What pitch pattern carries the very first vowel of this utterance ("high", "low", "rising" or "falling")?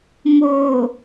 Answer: low